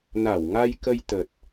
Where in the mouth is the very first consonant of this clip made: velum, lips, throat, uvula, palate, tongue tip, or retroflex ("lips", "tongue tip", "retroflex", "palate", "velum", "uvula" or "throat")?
tongue tip